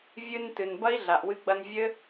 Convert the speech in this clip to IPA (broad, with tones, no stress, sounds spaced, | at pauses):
vʲ ɨ˧ n t ɨ˨ n b ɐ˦ i̯ ɮ a˨ ʔ w ɨ˧ ɡ͡b ɐ˧ n vʲ ɘ˦